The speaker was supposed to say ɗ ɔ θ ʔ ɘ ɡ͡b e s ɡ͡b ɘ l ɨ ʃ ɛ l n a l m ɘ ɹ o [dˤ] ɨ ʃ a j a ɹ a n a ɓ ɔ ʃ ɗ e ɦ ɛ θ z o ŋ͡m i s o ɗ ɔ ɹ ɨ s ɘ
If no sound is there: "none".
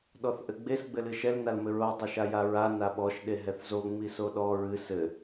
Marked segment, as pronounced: dˤ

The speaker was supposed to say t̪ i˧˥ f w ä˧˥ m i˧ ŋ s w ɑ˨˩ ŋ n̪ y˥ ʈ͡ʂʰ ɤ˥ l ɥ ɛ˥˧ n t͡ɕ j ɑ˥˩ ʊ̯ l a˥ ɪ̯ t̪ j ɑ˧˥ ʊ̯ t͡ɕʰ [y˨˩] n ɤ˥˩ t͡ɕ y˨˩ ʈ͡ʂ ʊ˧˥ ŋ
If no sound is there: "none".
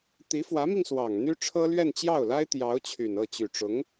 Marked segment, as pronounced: y˨˩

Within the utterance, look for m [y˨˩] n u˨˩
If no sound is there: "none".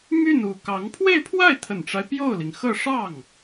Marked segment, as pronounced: y˥˩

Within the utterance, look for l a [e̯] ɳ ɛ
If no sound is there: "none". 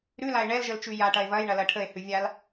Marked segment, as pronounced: e̯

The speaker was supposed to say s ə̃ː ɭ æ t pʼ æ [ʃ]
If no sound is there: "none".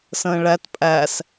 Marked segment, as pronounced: s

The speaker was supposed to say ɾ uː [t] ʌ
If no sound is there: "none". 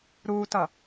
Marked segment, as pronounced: t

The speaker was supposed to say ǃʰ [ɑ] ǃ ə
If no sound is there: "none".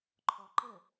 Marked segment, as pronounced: ɔ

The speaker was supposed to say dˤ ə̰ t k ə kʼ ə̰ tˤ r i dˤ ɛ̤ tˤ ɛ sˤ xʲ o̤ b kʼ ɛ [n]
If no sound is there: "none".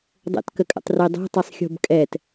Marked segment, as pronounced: t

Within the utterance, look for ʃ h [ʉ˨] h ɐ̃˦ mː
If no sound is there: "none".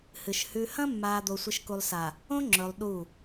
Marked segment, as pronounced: ʉ˨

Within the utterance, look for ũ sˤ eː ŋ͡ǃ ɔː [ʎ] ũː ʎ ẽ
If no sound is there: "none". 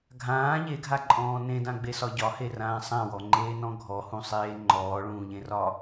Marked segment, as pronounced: ɭ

